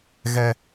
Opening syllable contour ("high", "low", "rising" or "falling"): high